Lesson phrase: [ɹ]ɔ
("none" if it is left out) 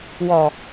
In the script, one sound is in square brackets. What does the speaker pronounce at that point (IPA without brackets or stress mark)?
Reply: w